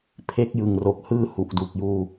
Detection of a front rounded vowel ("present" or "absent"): absent